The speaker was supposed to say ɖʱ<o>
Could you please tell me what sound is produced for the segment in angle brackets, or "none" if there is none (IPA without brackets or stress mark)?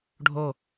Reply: o